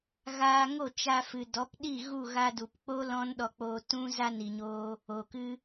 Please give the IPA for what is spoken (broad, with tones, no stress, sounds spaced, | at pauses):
ɣ aː˧ ŋ o˦˨ t͡ʃ a˧ f ɨ˨ d ɔ˨˦ p ɗ i˦˨ ɣ u˦˨ ɣ a˧ d u˨ p k͡p o˦ l ɔ̃˦ n ɗ ɔ˧ k͡p oː˧ t ũ˦ z a˦ n i˨ ɲ oː˦ | oː˨ k ɨ˦